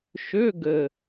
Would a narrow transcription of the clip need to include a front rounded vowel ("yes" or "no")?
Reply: yes